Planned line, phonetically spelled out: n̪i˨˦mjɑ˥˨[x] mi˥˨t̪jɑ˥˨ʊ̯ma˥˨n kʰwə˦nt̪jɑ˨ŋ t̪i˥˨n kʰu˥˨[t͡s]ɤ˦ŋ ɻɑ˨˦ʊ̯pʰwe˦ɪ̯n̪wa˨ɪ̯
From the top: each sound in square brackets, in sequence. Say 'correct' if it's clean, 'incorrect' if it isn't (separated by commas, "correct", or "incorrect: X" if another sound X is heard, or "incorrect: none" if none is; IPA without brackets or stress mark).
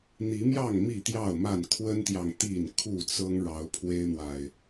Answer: incorrect: ŋ, correct